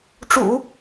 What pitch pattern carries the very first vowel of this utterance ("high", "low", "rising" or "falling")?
low